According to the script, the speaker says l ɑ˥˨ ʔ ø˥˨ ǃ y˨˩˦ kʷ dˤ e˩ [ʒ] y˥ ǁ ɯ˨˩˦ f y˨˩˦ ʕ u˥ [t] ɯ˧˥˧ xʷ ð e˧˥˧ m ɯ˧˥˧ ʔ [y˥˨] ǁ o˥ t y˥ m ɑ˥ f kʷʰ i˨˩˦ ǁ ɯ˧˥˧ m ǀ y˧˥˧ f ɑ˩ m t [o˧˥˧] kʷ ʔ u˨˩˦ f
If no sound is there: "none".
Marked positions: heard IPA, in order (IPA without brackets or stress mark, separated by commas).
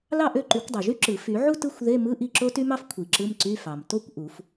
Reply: ʒ, t, i˥˨, o˥